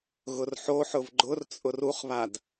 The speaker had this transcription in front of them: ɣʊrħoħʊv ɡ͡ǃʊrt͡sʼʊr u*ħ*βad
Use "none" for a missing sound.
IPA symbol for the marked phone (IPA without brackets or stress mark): χ